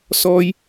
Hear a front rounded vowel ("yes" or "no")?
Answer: no